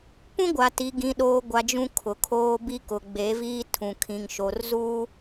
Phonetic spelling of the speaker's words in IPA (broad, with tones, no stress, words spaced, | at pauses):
pũ˦ɡʷa˨ti˨ ɡĩ˨ɗoː˨ɡʷa˨ d͡ʒũ˦kʰʊ˨kʰoː˦ bi˦kʊ˨ ɡ͡be˨˦viː˦tʰũ˨kʰĩ˨ŋ ʃo˨r zuː˦